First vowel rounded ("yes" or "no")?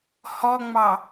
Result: yes